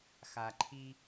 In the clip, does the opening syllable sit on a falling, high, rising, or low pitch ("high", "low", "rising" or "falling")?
low